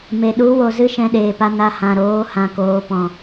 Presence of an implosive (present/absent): present